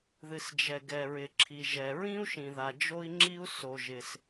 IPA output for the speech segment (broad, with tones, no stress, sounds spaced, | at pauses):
ð ɨ˩ s d͡ʒ ɛ˩ ɡ ɛ˩ ɹ ɪ˩ ǁʰ i˩ ʒ ɛ˩ ɹ ĩ˥ u̯ ʃ ĩ˩ ð a˩ d͡ʒ o˥ i̯ ŋ͡ǁ i˥ u̯ s o˩ ʒ ɪ˩ s